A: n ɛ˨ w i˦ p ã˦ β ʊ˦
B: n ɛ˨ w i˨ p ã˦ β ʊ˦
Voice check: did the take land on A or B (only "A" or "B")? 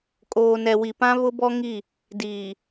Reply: B